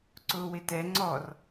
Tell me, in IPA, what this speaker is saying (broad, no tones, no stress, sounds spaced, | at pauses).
ǀ ʊː w ɪ t ɛ ŋ͡ǀ ɔ r